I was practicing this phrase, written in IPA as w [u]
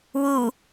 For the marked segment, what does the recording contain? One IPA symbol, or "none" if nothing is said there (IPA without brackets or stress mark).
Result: u